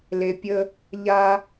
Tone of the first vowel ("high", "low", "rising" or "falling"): low